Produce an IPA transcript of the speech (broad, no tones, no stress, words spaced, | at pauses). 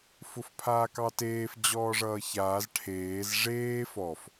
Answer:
fʊfpʰaːkɑteːf d͡ʑɔːʐʌːçaːz ʈʰeːz ʐeːf ɔf